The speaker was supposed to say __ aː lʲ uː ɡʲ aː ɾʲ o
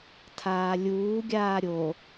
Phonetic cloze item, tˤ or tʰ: tʰ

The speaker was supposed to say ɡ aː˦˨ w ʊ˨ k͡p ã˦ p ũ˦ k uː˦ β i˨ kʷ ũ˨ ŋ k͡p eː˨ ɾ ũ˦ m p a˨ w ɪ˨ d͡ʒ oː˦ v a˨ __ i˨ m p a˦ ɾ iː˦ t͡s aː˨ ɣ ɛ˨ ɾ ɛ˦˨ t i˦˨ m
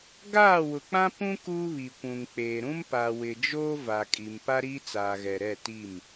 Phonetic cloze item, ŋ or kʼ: kʼ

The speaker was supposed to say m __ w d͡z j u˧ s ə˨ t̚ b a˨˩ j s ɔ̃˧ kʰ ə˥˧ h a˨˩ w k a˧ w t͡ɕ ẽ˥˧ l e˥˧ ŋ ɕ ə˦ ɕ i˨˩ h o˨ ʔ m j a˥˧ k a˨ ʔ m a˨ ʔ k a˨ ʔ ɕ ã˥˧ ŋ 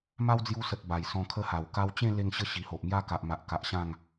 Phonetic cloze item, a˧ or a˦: a˦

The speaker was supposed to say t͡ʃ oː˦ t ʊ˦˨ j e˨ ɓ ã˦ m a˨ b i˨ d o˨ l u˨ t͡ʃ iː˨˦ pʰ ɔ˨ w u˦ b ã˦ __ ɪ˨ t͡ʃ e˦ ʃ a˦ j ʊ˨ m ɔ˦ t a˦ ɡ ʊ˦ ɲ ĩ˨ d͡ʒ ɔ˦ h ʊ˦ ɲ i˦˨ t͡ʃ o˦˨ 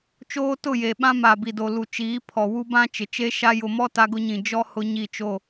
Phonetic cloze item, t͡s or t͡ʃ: t͡ʃ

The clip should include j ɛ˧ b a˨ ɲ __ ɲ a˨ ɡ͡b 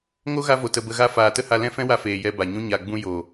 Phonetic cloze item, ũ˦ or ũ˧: ũ˦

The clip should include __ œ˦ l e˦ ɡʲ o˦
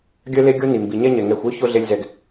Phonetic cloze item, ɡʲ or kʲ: ɡʲ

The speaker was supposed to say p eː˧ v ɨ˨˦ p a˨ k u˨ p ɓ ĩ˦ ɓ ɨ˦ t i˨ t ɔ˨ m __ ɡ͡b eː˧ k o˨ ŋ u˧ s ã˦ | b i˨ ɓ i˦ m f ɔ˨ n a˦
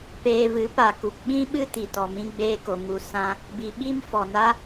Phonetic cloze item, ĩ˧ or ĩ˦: ĩ˧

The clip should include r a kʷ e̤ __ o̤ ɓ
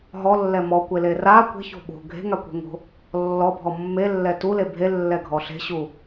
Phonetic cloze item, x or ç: ç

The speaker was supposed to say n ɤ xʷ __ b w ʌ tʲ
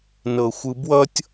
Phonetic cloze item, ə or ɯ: ɯ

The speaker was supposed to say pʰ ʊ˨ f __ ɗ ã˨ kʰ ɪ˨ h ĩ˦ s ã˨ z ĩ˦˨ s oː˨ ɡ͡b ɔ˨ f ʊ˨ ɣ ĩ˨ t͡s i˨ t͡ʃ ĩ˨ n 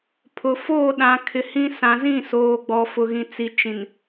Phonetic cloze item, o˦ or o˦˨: o˦˨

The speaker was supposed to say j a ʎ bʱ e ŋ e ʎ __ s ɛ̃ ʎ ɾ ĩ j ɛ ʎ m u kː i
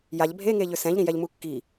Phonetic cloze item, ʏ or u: ʏ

